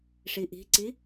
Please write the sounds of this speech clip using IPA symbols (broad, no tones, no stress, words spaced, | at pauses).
ʂiʔi̤ǀi